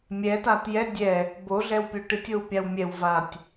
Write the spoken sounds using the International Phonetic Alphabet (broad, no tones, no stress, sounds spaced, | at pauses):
mʲ ɛ t a t j ɛ dʲ ɛ | b o ɮ ɛ w pʲ o ʈ ɨ tʲ o w pʲ a w mʲ ɛ w v a tʲ